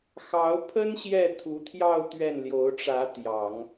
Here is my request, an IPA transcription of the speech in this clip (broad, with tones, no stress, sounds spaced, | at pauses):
x ɑ˧˥ ʊ̯ pʰ ə˥ n ɕ j ɛ˥˩ t̪ʰ u˧˥ t̪ʰ j ɑ˥˧ ʊ̯ t̪ ɥ ɛ˥˩ n l j o˧˥ ʊ̯ ʈ͡ʂ ä˧˥ t̪ j ɑ˨˩˦ ŋ